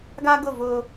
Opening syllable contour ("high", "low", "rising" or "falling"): high